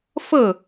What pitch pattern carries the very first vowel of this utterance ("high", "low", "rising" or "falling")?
falling